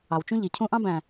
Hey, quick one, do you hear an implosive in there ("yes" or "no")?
no